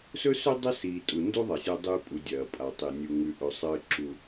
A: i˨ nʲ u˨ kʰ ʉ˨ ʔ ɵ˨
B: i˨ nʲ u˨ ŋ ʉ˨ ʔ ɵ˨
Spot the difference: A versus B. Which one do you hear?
B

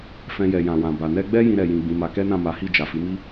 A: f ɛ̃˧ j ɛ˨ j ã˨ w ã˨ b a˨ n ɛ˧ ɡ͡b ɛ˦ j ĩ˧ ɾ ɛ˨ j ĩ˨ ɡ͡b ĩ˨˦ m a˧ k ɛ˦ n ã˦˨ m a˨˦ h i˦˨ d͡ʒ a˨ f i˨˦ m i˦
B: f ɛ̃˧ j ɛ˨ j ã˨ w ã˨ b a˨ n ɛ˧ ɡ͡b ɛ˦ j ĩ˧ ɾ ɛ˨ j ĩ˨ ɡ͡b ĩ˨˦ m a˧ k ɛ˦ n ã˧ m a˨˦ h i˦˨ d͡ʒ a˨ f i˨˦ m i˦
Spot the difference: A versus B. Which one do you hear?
A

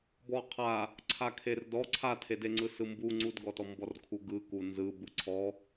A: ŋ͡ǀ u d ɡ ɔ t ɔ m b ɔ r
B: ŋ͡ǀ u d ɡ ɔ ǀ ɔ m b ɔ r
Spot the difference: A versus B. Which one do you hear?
A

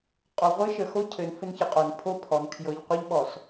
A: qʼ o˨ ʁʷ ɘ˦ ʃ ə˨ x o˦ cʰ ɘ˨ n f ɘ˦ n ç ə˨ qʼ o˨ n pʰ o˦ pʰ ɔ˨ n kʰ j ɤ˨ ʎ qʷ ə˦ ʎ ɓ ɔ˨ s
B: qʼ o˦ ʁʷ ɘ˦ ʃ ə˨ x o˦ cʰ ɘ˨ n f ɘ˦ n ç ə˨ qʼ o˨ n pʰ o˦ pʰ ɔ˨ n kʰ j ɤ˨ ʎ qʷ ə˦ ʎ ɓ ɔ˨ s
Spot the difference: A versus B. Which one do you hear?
A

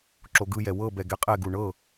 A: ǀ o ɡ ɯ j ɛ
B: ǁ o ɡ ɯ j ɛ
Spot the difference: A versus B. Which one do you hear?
B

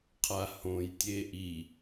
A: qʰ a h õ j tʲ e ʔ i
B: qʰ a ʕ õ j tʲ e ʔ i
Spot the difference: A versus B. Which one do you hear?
A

